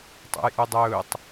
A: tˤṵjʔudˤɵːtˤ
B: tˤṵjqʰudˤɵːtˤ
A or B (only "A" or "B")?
A